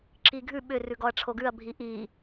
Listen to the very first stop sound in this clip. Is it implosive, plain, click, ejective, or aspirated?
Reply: click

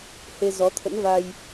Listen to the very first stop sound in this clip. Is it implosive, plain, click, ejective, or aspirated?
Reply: aspirated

